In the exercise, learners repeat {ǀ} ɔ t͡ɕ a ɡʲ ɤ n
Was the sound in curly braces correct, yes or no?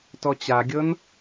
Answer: no